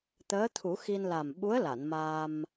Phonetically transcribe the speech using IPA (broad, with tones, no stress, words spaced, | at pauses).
t̪əː˧˥t̪ʰu˨˩˦xi˧n la˨˩mɓu˧˥ə̯la˨˩˨n maː˧m